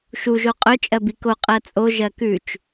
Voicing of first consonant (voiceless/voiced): voiceless